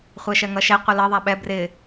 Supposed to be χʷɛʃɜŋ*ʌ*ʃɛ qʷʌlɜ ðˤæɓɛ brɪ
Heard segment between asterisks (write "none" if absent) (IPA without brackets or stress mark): ʌ